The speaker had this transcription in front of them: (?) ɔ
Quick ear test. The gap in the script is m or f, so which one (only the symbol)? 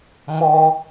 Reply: m